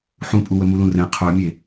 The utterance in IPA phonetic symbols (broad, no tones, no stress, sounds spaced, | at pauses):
ħ ũ pʼ u w ə m u l ũ r ɛ̃ qʰ ə˞ mʲ e